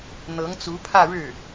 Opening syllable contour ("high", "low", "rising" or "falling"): rising